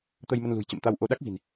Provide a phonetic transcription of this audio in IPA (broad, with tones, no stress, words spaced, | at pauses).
t̪ə˧jmə˧nlṳ˨˩j t͡ɕə̰˧˨mt̪a˧wʔo˧ ɗa˦˥k̚vi̤˨˩n